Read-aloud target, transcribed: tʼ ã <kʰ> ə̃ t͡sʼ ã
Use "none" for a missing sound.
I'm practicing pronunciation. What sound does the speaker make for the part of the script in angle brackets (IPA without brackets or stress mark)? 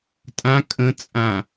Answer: kʼ